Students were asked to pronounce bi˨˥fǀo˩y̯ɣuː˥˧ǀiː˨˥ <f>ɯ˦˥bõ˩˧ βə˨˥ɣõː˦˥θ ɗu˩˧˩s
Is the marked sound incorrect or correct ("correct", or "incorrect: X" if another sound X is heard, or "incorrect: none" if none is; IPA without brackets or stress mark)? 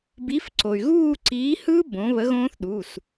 incorrect: h